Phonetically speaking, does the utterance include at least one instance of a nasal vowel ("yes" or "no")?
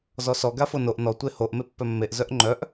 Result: no